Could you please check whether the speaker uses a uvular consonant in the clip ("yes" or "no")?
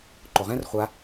yes